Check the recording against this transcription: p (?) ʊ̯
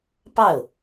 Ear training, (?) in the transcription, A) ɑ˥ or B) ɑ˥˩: B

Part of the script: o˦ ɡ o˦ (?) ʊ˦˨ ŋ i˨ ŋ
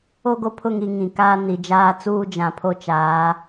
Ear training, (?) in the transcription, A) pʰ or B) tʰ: A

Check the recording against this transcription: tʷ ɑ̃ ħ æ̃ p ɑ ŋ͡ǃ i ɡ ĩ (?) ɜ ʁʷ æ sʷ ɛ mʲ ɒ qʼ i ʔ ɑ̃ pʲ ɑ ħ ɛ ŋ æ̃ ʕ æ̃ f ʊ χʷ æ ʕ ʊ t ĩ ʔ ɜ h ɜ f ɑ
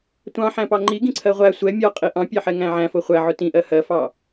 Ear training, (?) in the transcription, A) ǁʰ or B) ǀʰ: B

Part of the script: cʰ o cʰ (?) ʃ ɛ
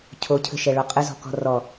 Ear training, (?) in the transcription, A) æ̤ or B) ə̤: B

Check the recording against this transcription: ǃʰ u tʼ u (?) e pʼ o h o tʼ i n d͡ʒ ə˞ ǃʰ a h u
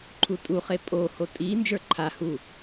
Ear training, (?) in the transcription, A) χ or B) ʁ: A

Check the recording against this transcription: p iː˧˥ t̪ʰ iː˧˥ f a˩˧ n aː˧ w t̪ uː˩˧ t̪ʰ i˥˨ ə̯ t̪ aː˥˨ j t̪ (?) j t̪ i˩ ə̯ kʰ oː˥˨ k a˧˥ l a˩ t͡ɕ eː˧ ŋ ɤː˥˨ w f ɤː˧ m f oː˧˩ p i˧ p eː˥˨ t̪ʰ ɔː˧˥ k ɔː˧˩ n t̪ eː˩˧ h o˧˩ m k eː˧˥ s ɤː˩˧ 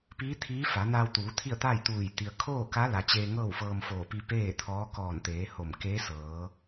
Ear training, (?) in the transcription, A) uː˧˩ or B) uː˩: A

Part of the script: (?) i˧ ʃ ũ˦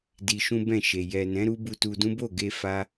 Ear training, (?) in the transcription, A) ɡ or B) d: B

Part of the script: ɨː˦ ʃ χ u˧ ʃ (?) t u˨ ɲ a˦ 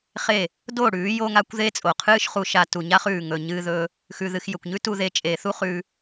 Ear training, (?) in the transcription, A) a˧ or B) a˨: A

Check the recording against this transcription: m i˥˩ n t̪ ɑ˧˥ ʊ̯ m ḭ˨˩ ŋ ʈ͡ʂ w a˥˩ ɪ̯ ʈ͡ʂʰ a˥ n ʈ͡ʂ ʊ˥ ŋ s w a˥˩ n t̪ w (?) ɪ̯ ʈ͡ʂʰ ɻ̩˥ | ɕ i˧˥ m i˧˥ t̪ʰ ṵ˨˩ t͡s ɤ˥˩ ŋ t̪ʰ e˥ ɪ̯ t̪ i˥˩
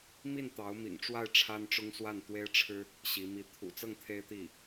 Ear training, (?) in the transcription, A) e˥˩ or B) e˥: B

